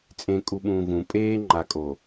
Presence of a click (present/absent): present